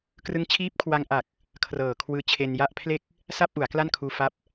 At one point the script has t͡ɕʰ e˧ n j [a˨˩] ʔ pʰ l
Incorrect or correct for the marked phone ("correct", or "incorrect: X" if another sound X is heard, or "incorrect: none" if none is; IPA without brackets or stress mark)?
incorrect: a˥˩